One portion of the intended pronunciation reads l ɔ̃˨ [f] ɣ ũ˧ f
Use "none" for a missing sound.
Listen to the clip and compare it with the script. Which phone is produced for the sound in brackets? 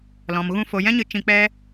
m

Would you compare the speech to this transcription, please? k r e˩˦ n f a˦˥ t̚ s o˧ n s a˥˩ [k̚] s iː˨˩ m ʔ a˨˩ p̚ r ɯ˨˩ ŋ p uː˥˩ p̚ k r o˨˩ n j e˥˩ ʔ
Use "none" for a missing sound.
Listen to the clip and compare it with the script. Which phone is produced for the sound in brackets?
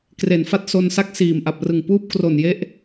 k̚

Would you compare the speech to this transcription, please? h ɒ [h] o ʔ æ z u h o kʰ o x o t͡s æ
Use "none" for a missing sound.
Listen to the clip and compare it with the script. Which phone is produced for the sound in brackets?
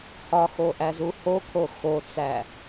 x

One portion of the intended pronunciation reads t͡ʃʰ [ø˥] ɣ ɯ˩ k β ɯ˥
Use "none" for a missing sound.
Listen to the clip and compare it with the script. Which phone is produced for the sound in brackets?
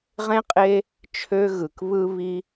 ø˥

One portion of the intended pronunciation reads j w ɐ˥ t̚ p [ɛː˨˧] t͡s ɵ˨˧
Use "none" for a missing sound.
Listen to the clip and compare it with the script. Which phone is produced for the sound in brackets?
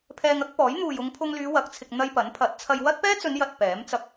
ɛː˥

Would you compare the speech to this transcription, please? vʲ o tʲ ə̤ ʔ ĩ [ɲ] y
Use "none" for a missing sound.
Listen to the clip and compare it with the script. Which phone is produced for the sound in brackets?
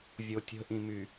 m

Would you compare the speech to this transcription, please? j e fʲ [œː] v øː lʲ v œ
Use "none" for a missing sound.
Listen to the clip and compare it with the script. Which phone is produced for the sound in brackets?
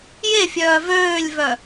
œː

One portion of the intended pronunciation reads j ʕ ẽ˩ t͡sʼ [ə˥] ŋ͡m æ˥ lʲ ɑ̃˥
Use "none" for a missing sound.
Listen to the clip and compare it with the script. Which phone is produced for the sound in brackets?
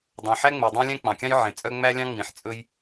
œ˥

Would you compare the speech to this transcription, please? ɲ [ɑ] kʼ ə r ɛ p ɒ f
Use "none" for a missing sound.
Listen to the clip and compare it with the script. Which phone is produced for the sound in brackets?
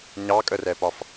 ɑ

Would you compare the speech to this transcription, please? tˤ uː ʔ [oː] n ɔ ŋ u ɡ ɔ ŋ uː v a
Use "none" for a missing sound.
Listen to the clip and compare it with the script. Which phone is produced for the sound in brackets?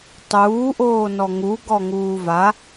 oː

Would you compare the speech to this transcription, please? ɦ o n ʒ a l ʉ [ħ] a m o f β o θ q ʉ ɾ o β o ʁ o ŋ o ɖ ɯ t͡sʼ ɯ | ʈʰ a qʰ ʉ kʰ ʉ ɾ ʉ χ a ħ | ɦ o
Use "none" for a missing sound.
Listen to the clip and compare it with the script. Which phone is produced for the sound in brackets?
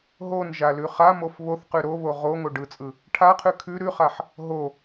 χ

